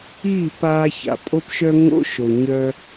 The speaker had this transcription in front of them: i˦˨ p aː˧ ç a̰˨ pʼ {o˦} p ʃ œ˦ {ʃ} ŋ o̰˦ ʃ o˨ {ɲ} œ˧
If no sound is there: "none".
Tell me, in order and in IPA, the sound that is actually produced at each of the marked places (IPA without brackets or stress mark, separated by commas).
o˦, none, ɲ